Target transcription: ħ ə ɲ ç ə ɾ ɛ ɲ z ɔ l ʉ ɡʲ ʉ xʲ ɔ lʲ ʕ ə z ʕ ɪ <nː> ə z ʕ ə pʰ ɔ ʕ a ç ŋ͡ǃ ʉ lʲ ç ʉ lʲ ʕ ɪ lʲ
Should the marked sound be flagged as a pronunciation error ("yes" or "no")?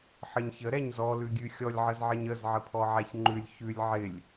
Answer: yes